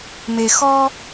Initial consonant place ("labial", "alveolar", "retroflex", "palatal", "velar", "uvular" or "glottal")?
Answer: labial